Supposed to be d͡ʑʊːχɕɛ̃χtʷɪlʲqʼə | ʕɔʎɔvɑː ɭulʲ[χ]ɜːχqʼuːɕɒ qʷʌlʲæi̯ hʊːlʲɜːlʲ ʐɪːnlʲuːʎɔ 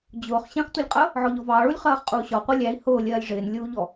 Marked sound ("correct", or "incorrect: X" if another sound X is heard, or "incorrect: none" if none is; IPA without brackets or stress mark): correct